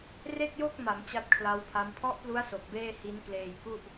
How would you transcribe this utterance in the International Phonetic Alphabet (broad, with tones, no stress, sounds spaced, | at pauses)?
r e˥˩ k̚ j o˥˩ k̚ m a˩˦ m t͡ɕ a˦˥ t̚ kʰ l a˦˥ w pʰ a˦˥ m pʰ ɔ˦˥ ʔ p l u˦˥ a̯ s o˨˩ k̚ b eː˥˩ h i˦˥ n k l eː˧ j k u˥˩ ʔ